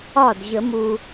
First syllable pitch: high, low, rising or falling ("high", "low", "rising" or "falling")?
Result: falling